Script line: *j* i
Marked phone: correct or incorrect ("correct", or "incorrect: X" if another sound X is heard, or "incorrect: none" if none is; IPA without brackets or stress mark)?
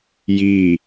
correct